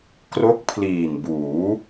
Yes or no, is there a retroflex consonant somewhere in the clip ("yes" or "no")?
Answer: no